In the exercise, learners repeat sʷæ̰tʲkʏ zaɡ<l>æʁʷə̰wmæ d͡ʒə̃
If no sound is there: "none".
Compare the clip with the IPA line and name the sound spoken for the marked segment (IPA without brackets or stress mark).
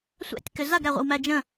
ɾ